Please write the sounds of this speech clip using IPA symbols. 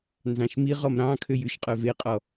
n z ɑ̃ ʃ m i ʁ ɔ m ɾ ɑ̃ kʰ ø j ʉ ʃ qʼ œ v e qʼ ɔ

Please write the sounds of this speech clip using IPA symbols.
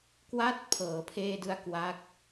k w a˥˩ t̚ pʰ ɤː˩˦ pʰ eː˧ d ɯ˧ a̯ k w a˦˥ k̚

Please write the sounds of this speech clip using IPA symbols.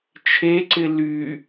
t͡ʃʰ e ǀ ɪ l y

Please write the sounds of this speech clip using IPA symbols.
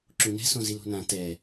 ǁ ũ n ɛ̤ s õ z i l o̤ n ã t ɛ

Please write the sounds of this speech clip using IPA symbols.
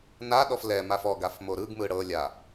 n a ɗ ɔ f l ɛ m a f ɔ ɡ a f m o ɾ ɯ ɡ m ɯ ɽ ɤ lʲ a

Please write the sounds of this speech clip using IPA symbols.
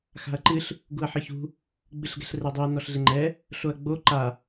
x a̤ ɐ̯ ǃ ɨ ɬ | ɡ u ɐ̯ ħ ɨ ç ṳ | ɡ͡b ɨ ɬ ɡ ɛ̤ ɬ r ɛ dˤ i ɐ̯ n ɔ ɬ ɮ e ŋ͡ǃ ɛ | ɬ o ɐ̯ ɡ͡b o ǃ a

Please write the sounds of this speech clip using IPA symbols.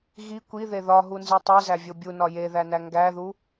ɣ i kʷ i ð e ð ɒ ɦ u n z i tˤ e z æ vʲ o bʲ u n ɒ j e ð æ n æ ŋ ɡ æ ð u

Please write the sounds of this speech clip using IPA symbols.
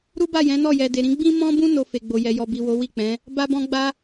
ɾ u˦ b a˦˨ j ɛ̃˨˦ n ɔ˦˨ j ɛ˨ d e˨ ɾ ĩ˨˦ ɡ͡b ĩ˦ m ɔ̃˦ b ũ˦ n o˧ f e˨ ɡ͡b o˨ j ɛ˨ j ɔ˨ b i˨ w o˨˦ w i˦˨ k͡p ɛ̃˨˦ | b a˦ b ɔ̃˦ ɡ͡b a˦

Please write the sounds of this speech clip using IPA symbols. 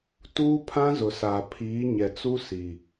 t uː˦ pʰ ã˦ z ʊ˨ s aː˨ pʰ iː˨˦ ɲ ɛ˨ t͡s u˦ s i˨

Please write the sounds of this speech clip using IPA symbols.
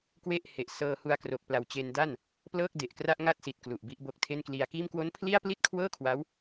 k w e˥˩ ʔ h e˨˩ ʔ s ɤː˧ h u˧ a̯ k r o˨˩ k̚ p l a˨˩ w t͡ɕ e˧ n d a˥˩ n | p l ɤː˥˩ k̚ d e˨˩ ʔ k r a˥˩ ʔ ŋ a˥˩ t̚ s i˨˩ t̚ k l u˨˩ ʔ b i˦˥ ʔ b o˦˥ k̚ tʰ e˥˩ n k l i˧ a̯ k iː˥˩ m k w o˦˥ n pʰ l i˥˩ a̯ p l i˥˩ t̚ kʰ w ɤː˥˩ kʰ w a˦˥ w

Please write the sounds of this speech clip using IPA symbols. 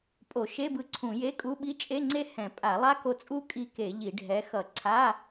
pʼ o˧˩˧ ʃ e˧˥˧ b ɯ˧ ǀʰ ũ˧˩˧ j e˧˥˧ kʼ u˧˥˧ ɓ i˦˥ t͡ʃʼ e˧˥˧ ŋ͡ǀ e˦˥ h ɛ̃˧˩˧ pʼ a˧˩˧ lˠ a˦˥ k o˧ t͡sʼ u˦˥ kʼ i˧ k e˧˩˧ ʎ i˧˩˧ ɖʱ ɛ˨˥ x ʌ˧˩˧ ǀʰ a˧˥˧

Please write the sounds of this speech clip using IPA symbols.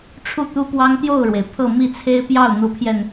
ʈ͡ʂʰ u˥˩ t̪ u˥ p w ɑ˥ ŋ t̪ j o˥˩ ʊ̯ ɻ w e˩ ɪ̯ pʰ ɤ˥˧ m i˥˩ t͡sʰ e˥ ɪ̯ p j ɑ˥˩ ʊ̯ n̪ u˧˥ pʰ j ɛ˧ n

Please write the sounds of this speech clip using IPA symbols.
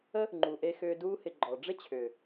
ə˦ | ŋ͡ǃ u˨ ʔ e˧ x ʏː˧ d uː˧ h ɪ˨ ɡ͡ǃ ɔ˨ ɖ͡ʐ ɪ˦ t͡ɕʰ ʏː˨

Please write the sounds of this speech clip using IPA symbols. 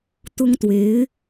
t̪ ʊ˥ ŋ t̪ w e˧˥ ɪ̯

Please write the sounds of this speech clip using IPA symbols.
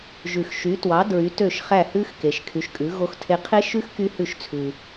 ʒ ʉ˨ x ʃ y˨˦ t w ɑ˨˦ d ɹ y˨˦ t ø˦˨ ʃ χ æ˦˨ h ʉ˦˥ x k e˨ ʃ kʰ y˨˦ ʃ kʼ ʉ˨˦ ɣ o˦˥ x tʰ e˦˥ qʰ e˦˥ ʃ ʉ˦˥ x k y˦˥ h ʉ˦˨ ʃ t͡sʰ ʉ˨

